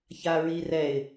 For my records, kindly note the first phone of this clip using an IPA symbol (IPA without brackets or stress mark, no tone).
ç